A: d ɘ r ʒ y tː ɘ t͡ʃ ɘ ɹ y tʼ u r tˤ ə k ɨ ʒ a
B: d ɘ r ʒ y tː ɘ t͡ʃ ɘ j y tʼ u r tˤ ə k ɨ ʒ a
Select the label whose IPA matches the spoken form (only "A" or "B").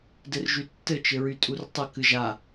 A